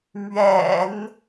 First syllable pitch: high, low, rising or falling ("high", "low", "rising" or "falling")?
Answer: low